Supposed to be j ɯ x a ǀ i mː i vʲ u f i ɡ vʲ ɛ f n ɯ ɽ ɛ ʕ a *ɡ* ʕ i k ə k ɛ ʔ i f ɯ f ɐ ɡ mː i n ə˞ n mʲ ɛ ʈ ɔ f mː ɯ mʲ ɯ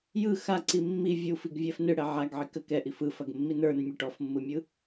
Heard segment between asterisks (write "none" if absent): ɡ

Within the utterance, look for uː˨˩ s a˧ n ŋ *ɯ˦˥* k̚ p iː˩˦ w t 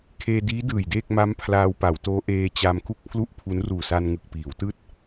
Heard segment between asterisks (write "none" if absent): ɯ˨˩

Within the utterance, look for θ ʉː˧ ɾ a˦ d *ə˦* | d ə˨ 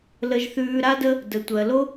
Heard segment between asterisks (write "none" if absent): ə˦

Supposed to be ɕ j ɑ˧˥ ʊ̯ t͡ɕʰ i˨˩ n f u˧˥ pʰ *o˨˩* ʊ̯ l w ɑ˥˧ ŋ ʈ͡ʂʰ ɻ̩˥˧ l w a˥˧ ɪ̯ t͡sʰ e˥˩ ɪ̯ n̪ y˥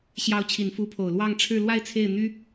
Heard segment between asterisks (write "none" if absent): o˨˩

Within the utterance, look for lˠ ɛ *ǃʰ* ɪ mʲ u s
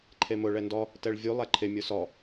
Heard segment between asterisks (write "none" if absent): ǃʰ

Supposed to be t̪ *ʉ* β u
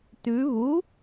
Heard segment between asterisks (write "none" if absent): ʉ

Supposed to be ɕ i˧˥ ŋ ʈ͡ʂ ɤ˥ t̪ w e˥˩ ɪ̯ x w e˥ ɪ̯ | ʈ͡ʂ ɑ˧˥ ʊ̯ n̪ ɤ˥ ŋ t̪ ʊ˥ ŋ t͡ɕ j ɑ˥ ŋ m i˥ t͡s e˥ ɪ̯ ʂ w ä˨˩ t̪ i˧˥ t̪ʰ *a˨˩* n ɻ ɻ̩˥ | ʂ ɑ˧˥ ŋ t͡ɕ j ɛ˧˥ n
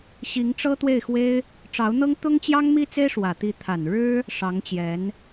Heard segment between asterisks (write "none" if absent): a˨˩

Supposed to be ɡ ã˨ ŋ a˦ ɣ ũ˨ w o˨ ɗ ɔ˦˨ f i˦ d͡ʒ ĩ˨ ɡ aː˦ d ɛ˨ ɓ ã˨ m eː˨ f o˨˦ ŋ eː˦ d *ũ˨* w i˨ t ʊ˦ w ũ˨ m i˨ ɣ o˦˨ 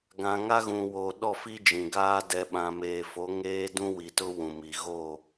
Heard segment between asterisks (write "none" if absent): ũ˦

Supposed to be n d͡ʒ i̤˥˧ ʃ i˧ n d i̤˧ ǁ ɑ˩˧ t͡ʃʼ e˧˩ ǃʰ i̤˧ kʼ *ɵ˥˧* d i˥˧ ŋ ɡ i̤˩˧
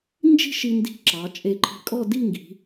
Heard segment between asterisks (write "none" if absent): ɔ˥˧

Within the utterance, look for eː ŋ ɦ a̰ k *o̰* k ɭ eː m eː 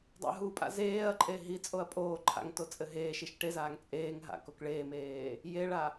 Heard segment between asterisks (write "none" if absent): o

